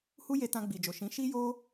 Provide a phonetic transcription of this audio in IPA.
h u˦ j e˧ t ã˧ ɡ͡b i˨ d͡ʒ o˨ ʃ ĩ˨˦ ʃ i˦ j o˦

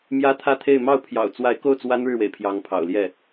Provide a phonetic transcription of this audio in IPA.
m j ä˥ t̪ʰ ä˥˧ t̪ʰ e˥˧ ɪ̯ m ɑ˥˩ ʊ̯ pʰ j ɑ̰˨˩ ʊ̯ t͡s w a˧˥ ɪ̯ k o˥˩ ʊ̯ t͡s w a˥ n ɻ ɻ̩˥˩ w ḛ˨˩ ɪ̯ pʰ j ɑ˧˥ ŋ pʰ ɑ̰˨˩ ʊ̯ l j ɛ˥˩

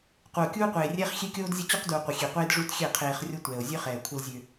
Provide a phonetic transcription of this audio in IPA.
q u˨ o̯ kʲ uː˦ qʷ eː˨ rʲ ɛː˦ χ xʲ e˦ kʲ oː˦ d zʲ ə˦ t͡ɕ u˦ q d u˨ o̯ qʷ ə˨ xʲ e˨ qʷ eː˦ d ʐ u˦ t xʲ ɛ˦˨ qʰ eː˨ χ rʲ o˦ tʷ ɛː˨ o̯ zʲ ø˦ χ ɛː˨ kʷʰ ə˦ l zʲ ø˦

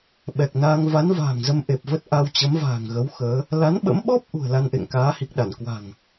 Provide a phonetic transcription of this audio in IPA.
ɓ ɛ˨˩ k̚ n aː˧ ŋ v a˨˦ n v a̤ː˨˩ ŋ z ə˧ m ʔ e˨˩ p̚ v ə˦˥ t̚ ʔ a˧ w t͡ɕ ə˨˦ m v a̤ː˨˩ ŋ ɣ ə˨˦ w x əː˨˦ | l a˨˦ n ɓ ə̰˧˥ m ɓ ɔ˦˥ p̚ ʔ ṳ˨˩ ə̯ l a˧ n ʔ ḛ˧˨ ŋ k aː˨˦ h i˨˩ k̚ ɗ a˧˩ n k w a̤˨˩ ŋ

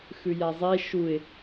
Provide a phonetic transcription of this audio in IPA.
x ʉ j a zˤ e ʃ u ɪ̯

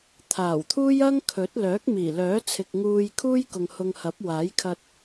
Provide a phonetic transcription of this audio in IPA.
t̪ʰ aː˨˩ w t̪ʰ uː˥ j ɐ˥ ŋ kʰ ɵ˨˥ t̚ l œː˨˥ k̚ m iː˨˩ l œː˨˥ t͡sʰ ɪ˨ k̚ ŋ uː˧ j kʰ uː˥ j k ʊ˨ ŋ h ʊ˧ ŋ h ɐ˨˥ p̚ w aː˨˥ j kʰ ɐ˧ t̚

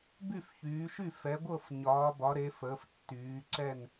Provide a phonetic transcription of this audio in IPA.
b y˥˨ f ç yː˩˧ ʃ y˥˨ f ɛ˩˧ ɡʷ ɤ˥˨ f ɲ ɒː˩˧ b ɒ˩˧ ɾ e˩˧ f əː˩˧ f tː yː˩˧ ǀ ɛ˥˨ n

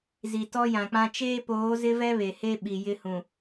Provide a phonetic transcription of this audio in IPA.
z i˨ t ɔ˦ j ã˨ k͡p ã˦ t͡ʃ eː˦ p oː˨˦ z ɪ˦ v ɛ˦ β e˨ h e˦ ɓ i˨ j ɪ˦ h ũ˨

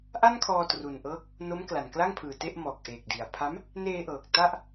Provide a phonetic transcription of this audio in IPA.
ʔ a˥˩ n kʰ ɔː˧ t r u˨˩ n ʔ ɤː˦˥ k̚ | n o˦˥ m k l a˨˩ n k l a˥˩ ŋ pʰ ɯː˨˩ t e˥˩ ʔ m ɔː˨˩ k̚ ʔ eː˨˩ k̚ d i˨˩ a̯ pʰ a˦˥ m | n eː˧ ʔ ɤː˨˩ k̚ t a˥˩ ʔ

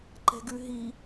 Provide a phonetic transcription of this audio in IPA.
ǃ ɛ̤ ɡ ʉ ɦ i

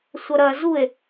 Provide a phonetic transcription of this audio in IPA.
sʷ ɐ ɾ ɐ z u e̯

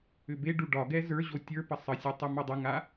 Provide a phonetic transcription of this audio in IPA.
ʏ b e ɖ u ɖ ɒ ɡ ɛ z ə˞ ʑ o tʲ ə˞ p ə sˤ ə sʲ e tˤ ʏ m o dˤ ə ŋ a

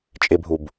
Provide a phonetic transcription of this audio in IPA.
t͡ʃʼ ɪ bʱ u b

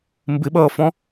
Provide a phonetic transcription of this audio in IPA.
m b ɪ ɓ ʌː f ɔ̃

